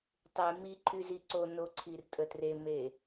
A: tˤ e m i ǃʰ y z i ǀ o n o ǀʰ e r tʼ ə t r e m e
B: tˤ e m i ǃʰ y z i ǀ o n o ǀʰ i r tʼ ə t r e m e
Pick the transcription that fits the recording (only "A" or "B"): B